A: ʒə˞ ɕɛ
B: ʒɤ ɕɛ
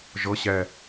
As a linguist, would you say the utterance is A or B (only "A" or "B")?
B